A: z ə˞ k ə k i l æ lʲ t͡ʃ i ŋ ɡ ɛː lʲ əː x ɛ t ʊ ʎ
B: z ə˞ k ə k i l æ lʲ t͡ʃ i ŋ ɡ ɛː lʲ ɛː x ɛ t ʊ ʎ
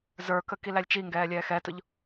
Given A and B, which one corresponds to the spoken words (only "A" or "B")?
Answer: B